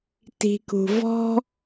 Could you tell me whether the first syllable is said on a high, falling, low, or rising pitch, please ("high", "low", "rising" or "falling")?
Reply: low